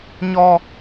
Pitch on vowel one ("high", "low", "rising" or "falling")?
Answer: high